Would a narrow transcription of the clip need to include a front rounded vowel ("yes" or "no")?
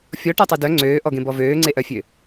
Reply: yes